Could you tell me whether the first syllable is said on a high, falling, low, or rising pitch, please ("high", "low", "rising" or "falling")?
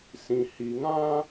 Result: low